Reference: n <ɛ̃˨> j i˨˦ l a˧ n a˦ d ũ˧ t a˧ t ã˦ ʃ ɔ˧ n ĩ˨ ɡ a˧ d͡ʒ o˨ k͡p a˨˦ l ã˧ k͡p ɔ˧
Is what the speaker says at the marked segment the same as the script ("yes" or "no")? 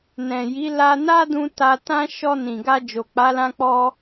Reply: yes